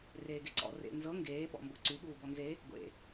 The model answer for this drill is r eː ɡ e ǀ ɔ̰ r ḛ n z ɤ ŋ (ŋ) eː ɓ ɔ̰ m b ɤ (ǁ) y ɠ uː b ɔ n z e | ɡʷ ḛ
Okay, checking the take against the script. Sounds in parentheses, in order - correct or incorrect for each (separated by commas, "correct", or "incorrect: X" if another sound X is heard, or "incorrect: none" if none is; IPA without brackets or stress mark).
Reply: incorrect: ɡ, incorrect: ǀ